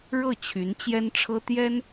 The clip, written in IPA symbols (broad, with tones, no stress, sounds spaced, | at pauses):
ɻ ɤ˥˩ t͡ɕʰ y˧˥ n t͡ɕ j ɛ˥ n ʈ͡ʂʰ ɤ˥ t̪ j ɛ˥ n